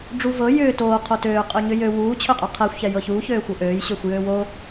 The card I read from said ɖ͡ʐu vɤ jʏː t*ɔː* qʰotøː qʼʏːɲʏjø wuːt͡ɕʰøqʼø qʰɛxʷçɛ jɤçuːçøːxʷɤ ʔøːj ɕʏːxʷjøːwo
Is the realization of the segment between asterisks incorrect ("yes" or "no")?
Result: yes